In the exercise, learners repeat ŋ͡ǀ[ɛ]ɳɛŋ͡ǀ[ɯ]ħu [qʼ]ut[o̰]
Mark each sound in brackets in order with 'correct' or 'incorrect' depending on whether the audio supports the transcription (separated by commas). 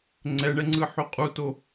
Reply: correct, correct, correct, incorrect